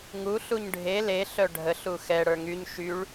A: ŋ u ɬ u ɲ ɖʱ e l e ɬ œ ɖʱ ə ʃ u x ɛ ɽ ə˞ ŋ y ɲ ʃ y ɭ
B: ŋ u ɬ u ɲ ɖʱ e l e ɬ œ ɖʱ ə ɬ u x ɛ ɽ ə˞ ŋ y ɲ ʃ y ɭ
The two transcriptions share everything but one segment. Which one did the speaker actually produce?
B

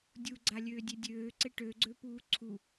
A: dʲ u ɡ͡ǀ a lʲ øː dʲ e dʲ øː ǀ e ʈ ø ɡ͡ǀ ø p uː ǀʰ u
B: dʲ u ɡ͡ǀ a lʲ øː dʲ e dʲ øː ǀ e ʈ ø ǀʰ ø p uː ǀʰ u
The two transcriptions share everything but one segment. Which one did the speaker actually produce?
A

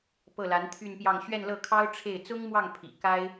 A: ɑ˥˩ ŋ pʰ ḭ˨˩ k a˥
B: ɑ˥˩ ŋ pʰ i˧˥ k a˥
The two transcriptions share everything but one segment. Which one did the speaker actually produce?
A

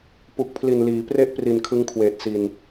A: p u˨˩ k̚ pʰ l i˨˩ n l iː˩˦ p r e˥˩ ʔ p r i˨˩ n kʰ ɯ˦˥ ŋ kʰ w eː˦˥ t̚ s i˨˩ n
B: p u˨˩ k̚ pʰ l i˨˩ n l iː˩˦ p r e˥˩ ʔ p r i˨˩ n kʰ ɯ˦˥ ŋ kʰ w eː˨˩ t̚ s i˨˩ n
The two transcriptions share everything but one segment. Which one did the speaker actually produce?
B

